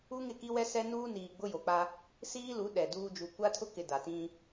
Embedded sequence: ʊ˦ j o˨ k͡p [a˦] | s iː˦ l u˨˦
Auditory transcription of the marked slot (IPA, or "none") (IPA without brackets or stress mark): a˦